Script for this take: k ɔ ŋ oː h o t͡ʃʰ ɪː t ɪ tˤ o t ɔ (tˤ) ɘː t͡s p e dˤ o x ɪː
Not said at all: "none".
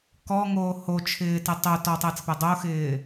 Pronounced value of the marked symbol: tˤ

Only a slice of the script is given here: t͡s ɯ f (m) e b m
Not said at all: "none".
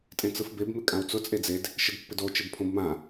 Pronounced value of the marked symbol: b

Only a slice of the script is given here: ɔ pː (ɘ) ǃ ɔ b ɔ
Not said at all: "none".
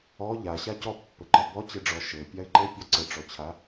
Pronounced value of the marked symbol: ɘ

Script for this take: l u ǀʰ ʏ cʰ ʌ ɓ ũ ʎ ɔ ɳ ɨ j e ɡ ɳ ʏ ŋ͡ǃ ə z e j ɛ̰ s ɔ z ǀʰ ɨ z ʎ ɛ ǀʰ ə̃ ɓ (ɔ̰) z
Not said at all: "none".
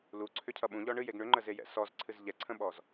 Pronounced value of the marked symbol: ɔ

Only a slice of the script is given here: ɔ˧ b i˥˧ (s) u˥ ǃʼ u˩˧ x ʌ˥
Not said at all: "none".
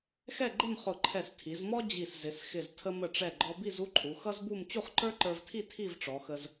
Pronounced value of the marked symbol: z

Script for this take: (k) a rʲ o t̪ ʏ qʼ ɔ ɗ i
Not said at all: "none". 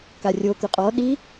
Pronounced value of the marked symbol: k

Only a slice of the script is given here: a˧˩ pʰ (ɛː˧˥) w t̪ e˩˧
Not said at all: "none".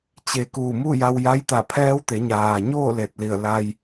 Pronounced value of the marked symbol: ɛː˧˥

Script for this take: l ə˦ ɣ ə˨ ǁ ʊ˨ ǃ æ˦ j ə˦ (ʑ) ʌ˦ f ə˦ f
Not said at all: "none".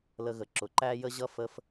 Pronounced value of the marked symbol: ʑ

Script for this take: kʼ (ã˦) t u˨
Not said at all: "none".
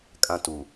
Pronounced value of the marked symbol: ã˦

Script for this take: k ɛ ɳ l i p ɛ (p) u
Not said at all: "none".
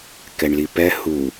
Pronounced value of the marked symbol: h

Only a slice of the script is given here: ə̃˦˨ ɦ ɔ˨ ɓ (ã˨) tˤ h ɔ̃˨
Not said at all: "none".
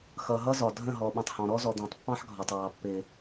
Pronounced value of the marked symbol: ə̃˨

